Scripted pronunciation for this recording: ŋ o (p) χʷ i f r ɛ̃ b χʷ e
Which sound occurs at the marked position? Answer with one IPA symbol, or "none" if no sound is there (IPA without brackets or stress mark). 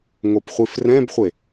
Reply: p